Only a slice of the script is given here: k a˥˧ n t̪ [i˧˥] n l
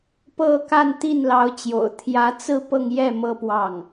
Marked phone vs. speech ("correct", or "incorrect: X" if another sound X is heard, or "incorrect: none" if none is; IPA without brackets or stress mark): incorrect: i˥˩